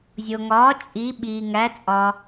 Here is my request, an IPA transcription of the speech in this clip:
zʲ o˩ ŋ ɒː˩˥ t͡ʃʼ i˩˥ ɓ iː˩ ŋ æ˩˥ t͡sʼ ɒ˩

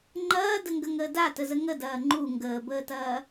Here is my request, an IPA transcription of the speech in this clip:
ŋ͡ǃ ɐː d ə ŋ ɡ ə ŋ əː d a t ə z ə ŋ ə d ɐː ŋ͡ǃ u ŋ ɡ əː b əː t ɐː

